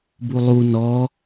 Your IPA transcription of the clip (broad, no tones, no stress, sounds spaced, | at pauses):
b u lˠ u n ɔ